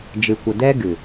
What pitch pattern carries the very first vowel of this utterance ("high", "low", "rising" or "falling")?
low